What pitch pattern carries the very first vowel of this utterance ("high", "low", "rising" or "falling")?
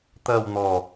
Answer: low